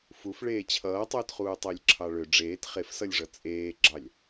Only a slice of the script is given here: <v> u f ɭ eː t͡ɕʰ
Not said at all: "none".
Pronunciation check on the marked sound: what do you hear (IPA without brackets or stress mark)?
f